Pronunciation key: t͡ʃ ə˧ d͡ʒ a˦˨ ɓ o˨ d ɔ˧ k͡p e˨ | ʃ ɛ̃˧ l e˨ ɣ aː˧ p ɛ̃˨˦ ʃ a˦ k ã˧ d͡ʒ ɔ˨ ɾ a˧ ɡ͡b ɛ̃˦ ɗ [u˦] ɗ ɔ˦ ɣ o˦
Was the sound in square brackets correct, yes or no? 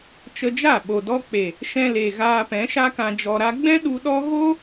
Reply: no